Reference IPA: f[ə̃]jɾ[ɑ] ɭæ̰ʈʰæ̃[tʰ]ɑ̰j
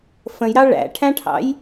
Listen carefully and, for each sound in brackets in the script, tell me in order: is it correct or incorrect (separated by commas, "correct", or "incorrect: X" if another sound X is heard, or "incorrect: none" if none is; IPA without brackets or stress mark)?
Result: correct, correct, incorrect: ʈʰ